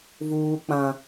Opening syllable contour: high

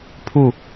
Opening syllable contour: falling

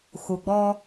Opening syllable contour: low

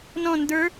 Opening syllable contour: falling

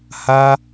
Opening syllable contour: high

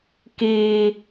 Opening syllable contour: high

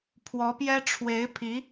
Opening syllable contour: rising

